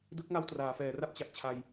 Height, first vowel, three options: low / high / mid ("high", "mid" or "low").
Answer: high